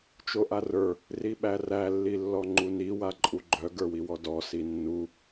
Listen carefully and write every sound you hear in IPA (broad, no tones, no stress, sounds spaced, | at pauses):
t͡ʃ o ʔ a r ə˞ | r i ɓ æ r æ lː i lː ɔ ŋ͡ǃ u n i w a ǃʼ u ɡ͡ǃ œ ɡ ə˞ w i w ɔ d ɔ s i nː u